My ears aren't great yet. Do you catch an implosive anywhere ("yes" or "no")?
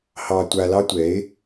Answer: no